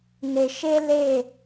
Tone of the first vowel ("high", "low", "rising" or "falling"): low